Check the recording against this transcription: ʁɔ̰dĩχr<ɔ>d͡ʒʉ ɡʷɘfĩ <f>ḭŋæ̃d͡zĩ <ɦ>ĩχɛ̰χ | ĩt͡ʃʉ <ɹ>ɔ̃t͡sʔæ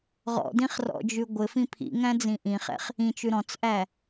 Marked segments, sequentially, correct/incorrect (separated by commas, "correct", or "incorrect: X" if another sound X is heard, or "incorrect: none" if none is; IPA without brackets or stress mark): incorrect: ɔ̰, incorrect: pʰ, incorrect: ʔ, incorrect: ɾ